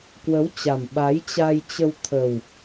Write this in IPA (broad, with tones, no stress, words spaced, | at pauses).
kwə˨˦wt͡ɕa˨˩m ɓa˨˦jt͡ɕa˧jt͡ɕə˧w t̪ʰə˨˩w